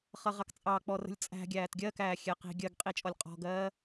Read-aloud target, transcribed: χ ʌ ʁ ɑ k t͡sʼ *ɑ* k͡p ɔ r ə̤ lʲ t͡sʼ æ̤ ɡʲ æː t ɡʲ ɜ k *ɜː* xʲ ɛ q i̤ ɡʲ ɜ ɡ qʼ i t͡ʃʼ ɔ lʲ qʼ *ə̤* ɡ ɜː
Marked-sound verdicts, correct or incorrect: correct, incorrect, incorrect

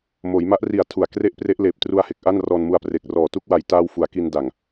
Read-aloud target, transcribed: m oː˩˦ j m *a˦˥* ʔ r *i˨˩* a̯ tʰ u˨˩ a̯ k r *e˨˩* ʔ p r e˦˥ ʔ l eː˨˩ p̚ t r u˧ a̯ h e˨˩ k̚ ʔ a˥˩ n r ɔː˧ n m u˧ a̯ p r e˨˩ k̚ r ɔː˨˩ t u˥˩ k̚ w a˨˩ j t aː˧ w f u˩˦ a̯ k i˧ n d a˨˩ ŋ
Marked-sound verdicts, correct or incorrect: correct, correct, incorrect

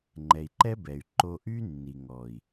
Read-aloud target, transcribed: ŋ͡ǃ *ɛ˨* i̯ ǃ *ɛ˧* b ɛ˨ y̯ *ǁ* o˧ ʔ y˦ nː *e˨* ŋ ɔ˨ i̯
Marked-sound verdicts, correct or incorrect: correct, incorrect, incorrect, incorrect

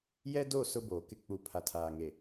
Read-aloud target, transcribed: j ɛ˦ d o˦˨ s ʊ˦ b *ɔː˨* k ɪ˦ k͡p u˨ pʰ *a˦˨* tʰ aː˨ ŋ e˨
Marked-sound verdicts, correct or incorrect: incorrect, incorrect

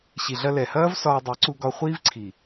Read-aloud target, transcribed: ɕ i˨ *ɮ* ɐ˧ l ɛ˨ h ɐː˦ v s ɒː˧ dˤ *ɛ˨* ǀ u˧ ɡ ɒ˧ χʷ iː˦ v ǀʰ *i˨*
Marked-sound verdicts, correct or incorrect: correct, incorrect, correct

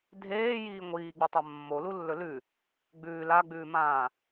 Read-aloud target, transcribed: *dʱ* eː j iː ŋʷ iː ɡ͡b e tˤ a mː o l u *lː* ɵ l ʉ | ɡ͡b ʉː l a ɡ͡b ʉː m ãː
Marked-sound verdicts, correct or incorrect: correct, correct

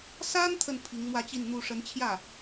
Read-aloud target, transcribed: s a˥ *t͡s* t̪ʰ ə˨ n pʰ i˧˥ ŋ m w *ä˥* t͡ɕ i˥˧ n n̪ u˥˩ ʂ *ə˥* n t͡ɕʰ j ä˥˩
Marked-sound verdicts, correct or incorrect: incorrect, incorrect, incorrect

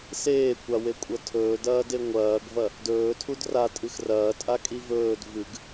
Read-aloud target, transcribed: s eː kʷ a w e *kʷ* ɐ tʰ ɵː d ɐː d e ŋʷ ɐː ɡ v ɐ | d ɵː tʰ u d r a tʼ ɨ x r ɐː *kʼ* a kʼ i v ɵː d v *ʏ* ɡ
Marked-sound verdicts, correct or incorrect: incorrect, incorrect, incorrect

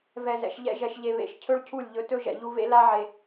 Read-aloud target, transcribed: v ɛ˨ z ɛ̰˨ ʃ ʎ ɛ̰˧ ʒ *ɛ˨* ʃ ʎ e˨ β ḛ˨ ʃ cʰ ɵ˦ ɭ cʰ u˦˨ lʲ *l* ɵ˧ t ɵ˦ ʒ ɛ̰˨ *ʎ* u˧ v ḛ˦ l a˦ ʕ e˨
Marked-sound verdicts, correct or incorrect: correct, incorrect, correct

